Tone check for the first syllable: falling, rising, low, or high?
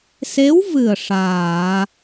rising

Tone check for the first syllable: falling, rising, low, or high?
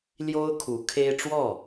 high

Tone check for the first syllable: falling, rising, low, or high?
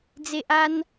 low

